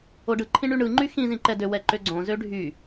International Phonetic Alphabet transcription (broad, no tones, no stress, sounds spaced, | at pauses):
o ɖ ɯ ǃʰ ĩ ɳ y ɳ ɯ ŋ͡ǃ y x ĩ z ĩ ǃ ɛ d ø w ɛ ǃ ø ɡ͡ǀ õ z ø ɖʱ y